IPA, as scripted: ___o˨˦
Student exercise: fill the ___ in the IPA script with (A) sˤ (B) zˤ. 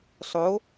A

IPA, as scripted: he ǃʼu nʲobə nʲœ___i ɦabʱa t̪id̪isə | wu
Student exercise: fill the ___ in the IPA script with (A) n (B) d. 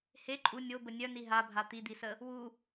A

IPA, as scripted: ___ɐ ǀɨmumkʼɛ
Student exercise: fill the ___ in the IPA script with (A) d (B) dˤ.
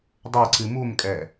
B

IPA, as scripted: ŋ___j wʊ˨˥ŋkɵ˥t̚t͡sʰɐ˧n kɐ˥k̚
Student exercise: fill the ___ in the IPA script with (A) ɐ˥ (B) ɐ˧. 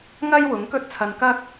A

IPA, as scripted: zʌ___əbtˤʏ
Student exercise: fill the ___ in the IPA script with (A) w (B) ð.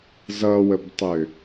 A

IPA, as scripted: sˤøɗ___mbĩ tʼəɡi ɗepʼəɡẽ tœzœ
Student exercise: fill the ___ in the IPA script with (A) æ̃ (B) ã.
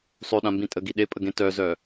B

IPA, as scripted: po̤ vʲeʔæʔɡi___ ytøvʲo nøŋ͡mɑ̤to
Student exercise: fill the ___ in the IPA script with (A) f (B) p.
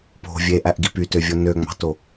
B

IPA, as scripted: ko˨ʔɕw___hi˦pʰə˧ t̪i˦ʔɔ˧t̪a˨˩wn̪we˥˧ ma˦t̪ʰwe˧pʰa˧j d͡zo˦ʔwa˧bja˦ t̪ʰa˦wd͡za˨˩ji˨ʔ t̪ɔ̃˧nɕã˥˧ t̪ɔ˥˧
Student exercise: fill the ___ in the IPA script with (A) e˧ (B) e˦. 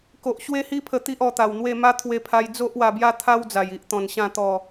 B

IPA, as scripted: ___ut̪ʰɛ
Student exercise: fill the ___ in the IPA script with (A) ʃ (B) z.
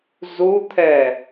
B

